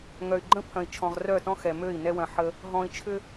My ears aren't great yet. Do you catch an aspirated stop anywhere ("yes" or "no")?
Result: yes